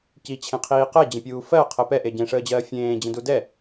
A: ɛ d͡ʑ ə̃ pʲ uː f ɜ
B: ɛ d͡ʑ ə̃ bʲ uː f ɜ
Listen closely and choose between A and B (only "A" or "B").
A